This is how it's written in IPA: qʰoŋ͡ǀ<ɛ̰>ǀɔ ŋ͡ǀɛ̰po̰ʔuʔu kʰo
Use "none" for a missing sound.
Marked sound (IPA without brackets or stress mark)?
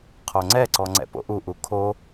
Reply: ɛ